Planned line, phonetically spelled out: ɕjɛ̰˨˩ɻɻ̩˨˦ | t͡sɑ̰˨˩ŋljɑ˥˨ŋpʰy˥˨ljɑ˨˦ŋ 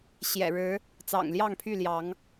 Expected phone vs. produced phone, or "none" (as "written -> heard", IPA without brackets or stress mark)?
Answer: none